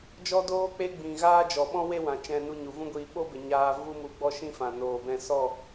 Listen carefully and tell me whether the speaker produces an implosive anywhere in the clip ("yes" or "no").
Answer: yes